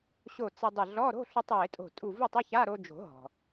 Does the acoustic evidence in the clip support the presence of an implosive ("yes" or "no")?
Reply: no